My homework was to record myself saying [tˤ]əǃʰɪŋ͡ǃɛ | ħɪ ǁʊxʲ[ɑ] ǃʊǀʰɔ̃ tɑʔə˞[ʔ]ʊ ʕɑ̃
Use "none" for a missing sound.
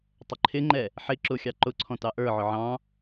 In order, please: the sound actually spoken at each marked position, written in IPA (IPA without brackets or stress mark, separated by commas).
tˤ, ɑ, ʕ